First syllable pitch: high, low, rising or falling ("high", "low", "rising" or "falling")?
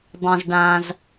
low